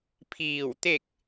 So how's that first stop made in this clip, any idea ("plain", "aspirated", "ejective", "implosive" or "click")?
aspirated